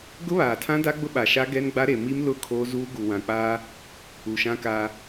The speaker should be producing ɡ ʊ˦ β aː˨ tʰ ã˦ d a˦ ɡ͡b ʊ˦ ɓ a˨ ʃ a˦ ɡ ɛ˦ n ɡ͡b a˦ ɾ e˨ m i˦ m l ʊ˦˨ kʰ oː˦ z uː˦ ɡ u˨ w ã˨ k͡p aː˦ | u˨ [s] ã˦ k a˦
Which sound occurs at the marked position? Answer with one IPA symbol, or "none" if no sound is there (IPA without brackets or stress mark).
ʃ